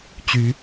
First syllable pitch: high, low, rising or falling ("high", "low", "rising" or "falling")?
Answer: rising